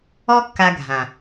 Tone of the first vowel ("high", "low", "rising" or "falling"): high